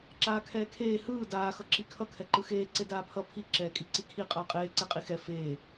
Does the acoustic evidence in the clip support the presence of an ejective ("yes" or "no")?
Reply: yes